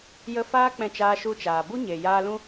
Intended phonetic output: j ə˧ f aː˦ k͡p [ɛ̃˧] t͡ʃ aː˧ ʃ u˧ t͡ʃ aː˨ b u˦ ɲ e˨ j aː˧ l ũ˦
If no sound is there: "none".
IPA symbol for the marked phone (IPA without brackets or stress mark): ɛ̃˧